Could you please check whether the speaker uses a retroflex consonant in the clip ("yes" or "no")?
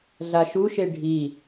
yes